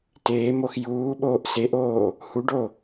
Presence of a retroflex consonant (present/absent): present